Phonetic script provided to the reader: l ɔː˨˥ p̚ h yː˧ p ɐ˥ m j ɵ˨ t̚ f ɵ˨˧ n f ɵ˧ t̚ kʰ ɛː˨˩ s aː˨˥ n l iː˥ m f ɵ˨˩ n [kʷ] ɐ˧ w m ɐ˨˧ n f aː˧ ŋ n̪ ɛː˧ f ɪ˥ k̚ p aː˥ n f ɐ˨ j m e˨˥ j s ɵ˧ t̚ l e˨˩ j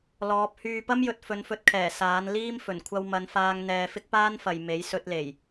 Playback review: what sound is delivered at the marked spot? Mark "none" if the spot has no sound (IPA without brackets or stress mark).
kʷʰ